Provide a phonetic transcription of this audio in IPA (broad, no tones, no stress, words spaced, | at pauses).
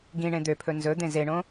ɡĩ ɳẽd̪øpʰɵ nzɵd̪ẽ zeɳõ